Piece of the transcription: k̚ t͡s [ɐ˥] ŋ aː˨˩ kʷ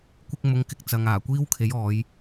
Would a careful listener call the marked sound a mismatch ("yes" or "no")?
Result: yes